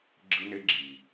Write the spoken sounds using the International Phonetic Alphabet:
ɡ͡ǁɯ˦ne˦ ɡ͡ǁiː˨

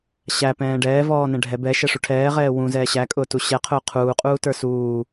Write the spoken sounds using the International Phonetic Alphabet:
ɕæpɛ̃ː ɖɛːvɔːnɛ̃ ɖʱɛ bɛʃɛʂu ʈʰɛːʁɛː wũzɛː ɕækʼʊːtu ɕɛqʰʊː qʰuːqʼuːtə˞ suː

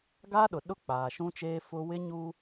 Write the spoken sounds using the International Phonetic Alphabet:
ɡaː˦ɗʊ˨ ɗʊ˦˨ k͡paː˨ʃũ˦t͡ʃeː˦ fʊ˦ wɪ˦ɲu˦

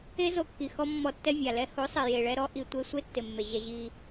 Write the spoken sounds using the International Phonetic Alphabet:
e˦ zo˧kːi˨xɔ˦ mːɔ˧tːɛ˦ vʲa˨lɛ˦ ho˨˦sˤɪ˨ je˨ɭɛ˧ ɾɔ˧ʔi˨ tʷe˧sʷe˦tːɪ˨ mːe˨ʑɛ˧ʑi˧

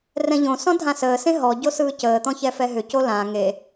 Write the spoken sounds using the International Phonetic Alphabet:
rɛ̃ʎõsɔ̃ dʱãsəːsẽ ɦɔɟo sɯːcəːt̪ɔ̃ çɛfɛɦʏco lã ŋe

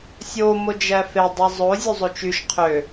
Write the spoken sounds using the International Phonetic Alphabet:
sʲo mod͡ʒæfe dˤezˤo zʲuzˤot͡ʃyʃ qʰø

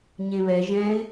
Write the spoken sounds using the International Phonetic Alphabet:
ɲẽβɛ ʒɛ̃ɪ̯

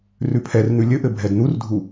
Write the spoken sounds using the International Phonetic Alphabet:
rʉpʰɛrn̪ʉ lʲɘʔɘ bʱɛdn̪urdʱu

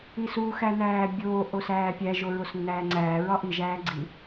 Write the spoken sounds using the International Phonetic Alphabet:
isu xænæːbʲoː ʔosæːpʲæ ʒoɹosnːæːŋ͡ǀæː ɹɒʔi ʒæːɡ͡ǀi

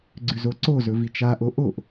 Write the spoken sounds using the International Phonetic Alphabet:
ɡ͡ǀʉzoǀo zɵvit͡ʃa ʔoʔoʔ

